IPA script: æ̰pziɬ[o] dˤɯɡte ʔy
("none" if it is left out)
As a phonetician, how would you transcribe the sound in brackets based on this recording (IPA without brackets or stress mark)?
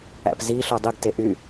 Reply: o